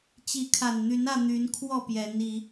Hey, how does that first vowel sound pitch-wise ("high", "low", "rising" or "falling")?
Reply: rising